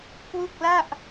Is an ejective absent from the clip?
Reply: yes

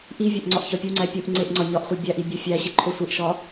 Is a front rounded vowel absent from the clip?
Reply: yes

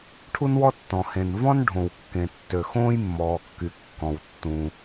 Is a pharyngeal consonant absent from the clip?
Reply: yes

